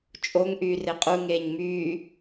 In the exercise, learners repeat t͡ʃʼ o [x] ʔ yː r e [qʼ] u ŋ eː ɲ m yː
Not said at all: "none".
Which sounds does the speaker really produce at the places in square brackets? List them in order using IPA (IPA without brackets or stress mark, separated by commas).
ŋ, qʼ